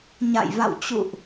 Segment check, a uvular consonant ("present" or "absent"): absent